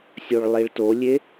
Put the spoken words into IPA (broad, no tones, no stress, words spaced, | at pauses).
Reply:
sʲoɭlˠiɭtolʲe